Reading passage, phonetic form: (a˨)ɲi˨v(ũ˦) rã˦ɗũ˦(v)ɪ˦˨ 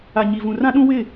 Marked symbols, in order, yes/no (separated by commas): yes, no, no